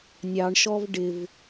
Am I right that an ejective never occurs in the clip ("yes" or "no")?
yes